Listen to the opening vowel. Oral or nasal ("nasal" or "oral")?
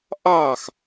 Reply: oral